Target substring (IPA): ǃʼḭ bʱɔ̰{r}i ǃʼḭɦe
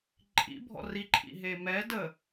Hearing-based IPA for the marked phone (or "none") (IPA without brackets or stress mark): r